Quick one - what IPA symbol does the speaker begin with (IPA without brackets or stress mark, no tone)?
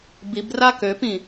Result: b